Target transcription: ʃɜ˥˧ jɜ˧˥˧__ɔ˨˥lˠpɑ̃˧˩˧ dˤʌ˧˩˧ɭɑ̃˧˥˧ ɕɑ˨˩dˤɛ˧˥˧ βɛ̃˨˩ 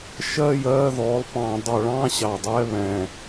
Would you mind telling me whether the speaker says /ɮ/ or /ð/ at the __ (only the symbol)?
ð